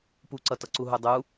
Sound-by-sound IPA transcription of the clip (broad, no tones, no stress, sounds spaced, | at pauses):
p u ǀ ʌ t ʌ ǀ u ɦ u dˤ u